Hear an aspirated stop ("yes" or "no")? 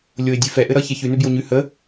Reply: no